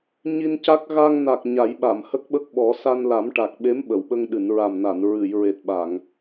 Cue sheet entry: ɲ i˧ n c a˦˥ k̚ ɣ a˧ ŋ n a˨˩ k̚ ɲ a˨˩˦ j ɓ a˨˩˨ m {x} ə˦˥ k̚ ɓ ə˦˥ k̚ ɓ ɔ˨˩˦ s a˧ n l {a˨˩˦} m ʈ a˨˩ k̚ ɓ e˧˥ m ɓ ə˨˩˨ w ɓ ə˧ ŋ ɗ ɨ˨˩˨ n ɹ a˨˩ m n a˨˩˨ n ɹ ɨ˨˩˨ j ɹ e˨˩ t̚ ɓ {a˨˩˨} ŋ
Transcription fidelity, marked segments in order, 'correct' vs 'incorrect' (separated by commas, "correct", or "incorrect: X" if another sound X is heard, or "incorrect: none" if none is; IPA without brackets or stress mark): incorrect: h, correct, correct